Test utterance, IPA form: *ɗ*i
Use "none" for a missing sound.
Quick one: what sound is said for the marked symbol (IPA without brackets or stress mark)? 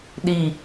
ɗ